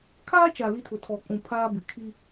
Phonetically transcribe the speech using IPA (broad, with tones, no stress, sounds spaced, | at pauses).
kʰ aː˦ t͡ʃ a˨ l i˦ tʰ ʊ˨ tʰ ɔ˨ kʼ ũ˨ pʰ aː˦ b ɪ˨ kʰ i˦